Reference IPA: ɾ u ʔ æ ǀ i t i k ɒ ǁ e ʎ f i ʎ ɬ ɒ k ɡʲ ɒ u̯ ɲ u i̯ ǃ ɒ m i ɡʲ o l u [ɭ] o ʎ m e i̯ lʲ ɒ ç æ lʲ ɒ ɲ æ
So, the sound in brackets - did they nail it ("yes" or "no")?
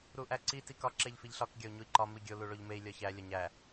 yes